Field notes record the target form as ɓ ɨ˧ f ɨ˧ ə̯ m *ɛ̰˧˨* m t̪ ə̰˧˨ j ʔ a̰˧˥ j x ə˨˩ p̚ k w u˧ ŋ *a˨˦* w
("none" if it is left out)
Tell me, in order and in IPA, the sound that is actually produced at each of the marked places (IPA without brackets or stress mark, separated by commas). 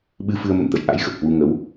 ə̰˧˨, ə˨˦